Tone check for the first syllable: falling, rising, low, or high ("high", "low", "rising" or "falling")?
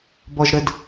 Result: high